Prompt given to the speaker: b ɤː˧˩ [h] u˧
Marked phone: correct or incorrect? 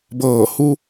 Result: correct